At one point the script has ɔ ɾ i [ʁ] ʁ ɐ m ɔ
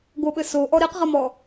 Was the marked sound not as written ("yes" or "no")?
yes